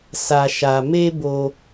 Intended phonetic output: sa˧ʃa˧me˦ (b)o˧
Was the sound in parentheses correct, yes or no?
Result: yes